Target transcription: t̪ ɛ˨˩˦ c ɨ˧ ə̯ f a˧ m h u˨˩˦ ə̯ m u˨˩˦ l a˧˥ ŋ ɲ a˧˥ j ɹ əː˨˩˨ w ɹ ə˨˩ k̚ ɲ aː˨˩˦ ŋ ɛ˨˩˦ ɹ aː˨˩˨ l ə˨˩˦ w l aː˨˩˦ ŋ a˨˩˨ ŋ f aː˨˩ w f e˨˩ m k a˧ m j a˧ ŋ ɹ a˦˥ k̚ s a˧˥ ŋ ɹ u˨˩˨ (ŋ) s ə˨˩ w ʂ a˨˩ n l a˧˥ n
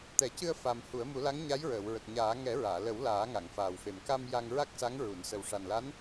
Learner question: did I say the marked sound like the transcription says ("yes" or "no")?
no